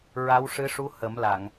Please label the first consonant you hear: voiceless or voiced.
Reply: voiced